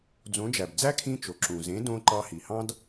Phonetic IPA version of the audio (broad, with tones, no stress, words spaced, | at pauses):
d͡zõ˩˥d͡ʒæ˩bd͡zæ˥ kʰĩ˧t͡ʃo˩ǁũ˩zẽ˩˥ dõ˧ ǃɑ˧hi˩hɑ̃˥d